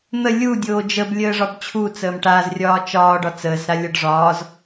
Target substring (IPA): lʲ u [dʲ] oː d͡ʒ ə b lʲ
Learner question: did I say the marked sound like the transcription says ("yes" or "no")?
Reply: yes